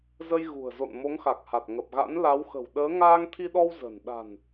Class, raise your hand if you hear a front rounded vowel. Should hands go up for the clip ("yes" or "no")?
no